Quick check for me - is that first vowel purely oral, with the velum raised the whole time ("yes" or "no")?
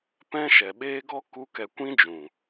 no